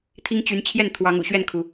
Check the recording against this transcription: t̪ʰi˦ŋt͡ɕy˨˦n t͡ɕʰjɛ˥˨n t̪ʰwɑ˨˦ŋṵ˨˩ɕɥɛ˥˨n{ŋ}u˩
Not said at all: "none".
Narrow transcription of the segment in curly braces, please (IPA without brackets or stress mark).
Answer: kʰ